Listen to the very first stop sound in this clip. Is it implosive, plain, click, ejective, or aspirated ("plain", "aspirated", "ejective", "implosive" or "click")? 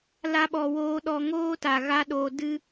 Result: implosive